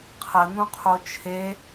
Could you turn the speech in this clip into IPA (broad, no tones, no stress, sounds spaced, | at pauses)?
qʰ ə n̪ ũ qʰ o t͡ʃʰ e